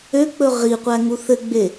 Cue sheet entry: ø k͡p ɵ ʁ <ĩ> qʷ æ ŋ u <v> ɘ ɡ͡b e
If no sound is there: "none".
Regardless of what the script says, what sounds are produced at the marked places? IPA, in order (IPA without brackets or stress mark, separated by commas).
i, θ